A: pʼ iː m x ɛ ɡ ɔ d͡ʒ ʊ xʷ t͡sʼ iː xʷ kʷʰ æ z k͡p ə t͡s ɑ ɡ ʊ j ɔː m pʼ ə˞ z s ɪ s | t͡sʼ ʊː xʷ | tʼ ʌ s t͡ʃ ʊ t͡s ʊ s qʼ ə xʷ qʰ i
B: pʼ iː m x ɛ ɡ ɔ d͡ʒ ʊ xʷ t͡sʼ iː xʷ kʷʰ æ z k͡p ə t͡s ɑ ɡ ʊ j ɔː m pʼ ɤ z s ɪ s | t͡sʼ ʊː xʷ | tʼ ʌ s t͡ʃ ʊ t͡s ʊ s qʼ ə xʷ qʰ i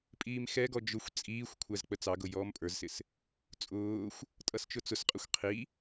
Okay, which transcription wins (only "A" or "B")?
A